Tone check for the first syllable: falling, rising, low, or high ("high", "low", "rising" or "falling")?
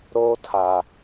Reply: high